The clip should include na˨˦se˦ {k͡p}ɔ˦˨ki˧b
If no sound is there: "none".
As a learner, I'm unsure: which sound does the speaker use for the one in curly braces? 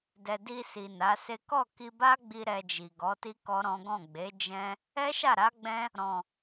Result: k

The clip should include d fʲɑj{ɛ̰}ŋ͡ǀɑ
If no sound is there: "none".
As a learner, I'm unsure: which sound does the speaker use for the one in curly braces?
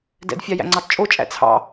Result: æ̰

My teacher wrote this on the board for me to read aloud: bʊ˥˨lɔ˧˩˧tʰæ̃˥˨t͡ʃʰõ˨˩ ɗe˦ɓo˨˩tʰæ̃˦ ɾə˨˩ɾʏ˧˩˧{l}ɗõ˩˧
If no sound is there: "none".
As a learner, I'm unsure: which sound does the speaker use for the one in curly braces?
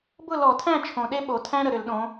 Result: l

